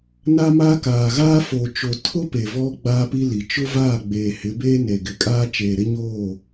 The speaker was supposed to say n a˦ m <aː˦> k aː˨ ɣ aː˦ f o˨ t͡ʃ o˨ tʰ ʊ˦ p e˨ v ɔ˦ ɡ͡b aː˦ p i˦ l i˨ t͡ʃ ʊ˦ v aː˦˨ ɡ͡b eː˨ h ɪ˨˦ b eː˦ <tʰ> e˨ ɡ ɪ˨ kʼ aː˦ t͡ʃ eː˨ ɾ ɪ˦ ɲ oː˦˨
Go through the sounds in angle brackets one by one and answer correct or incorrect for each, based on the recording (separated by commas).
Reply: incorrect, incorrect